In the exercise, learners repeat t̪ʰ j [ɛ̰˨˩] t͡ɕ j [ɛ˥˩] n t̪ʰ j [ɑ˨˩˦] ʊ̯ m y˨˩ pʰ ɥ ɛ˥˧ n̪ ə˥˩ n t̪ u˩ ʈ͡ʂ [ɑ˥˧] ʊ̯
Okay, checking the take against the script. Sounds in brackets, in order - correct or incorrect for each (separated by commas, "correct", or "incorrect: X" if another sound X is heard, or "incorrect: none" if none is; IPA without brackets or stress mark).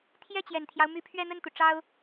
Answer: incorrect: ɛ˥˩, incorrect: ɛ˨˩, incorrect: ɑ˦, incorrect: ɑ˥